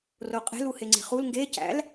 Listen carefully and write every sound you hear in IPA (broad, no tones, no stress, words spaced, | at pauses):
roqʼe̤l uheŋ͡ǀe̤χul ŋɡe cæ̰l